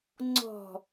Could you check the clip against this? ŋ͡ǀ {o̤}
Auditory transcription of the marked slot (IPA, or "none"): ɔ̤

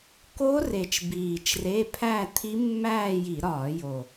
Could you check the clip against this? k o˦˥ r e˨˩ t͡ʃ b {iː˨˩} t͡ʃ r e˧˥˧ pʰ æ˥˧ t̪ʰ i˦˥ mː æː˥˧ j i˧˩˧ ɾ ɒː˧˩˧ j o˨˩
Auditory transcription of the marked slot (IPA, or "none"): iː˨˩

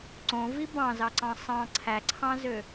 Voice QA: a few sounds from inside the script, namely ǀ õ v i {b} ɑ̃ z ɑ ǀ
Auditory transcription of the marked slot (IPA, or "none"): b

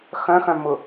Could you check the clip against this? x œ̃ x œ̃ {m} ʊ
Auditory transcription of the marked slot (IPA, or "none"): m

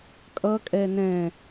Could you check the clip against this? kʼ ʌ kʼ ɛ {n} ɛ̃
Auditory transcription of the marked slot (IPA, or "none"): n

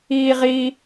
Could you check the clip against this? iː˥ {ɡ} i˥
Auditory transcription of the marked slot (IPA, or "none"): ʁ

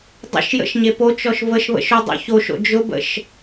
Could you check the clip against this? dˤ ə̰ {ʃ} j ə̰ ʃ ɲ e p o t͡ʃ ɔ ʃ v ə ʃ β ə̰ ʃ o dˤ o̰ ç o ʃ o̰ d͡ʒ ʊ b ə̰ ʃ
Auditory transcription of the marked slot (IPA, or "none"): ʃ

